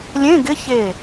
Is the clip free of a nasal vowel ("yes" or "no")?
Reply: no